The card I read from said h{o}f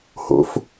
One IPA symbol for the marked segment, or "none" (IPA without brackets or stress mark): o̰